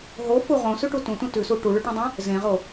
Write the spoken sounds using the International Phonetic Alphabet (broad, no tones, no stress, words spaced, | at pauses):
ɦofu ʁõsʉʈu tũtũ tʉsu ʈuɭʉʈũdˤœ̃ | zẽʁo